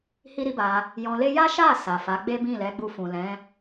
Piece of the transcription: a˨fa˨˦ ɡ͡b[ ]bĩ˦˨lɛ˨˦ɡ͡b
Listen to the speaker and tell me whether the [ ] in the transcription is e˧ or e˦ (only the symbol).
e˦